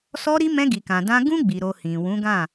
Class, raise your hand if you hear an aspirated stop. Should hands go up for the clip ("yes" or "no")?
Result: no